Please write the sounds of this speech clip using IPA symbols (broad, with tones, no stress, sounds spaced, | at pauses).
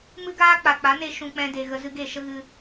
m ɨ˦ ɡ aː˦ k͡p a˨ k͡p a˨˦ n e˧ ʃ ũ˨ k͡p ɛ̃˧ d e˨ ɣ ə˧ z ɨ˧ ɡ e˦˨ ʃ ə˦ ɣ ɨ˧